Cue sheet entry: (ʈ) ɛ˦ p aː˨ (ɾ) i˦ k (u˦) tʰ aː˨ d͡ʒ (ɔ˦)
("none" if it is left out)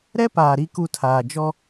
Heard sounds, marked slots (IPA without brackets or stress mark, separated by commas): ɾ, ɾ, u˦, ɔ˦